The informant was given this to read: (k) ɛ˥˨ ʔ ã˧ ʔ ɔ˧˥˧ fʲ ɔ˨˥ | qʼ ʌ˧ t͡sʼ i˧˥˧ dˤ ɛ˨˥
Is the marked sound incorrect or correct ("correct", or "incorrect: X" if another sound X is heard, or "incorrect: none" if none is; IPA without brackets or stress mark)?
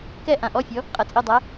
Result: correct